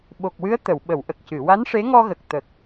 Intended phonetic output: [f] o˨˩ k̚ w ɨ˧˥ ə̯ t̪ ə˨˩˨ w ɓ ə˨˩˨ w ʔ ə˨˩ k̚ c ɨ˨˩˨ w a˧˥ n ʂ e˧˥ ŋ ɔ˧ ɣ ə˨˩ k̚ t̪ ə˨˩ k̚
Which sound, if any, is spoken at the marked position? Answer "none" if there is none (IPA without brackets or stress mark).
ɓ